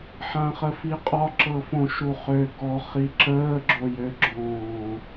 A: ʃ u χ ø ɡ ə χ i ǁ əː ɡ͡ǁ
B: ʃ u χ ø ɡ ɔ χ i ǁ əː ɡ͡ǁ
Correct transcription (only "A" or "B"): B